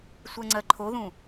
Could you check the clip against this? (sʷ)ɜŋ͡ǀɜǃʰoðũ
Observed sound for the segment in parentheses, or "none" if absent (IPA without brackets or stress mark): sʷ